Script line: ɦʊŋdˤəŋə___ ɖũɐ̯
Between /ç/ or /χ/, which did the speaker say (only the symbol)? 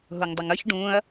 ç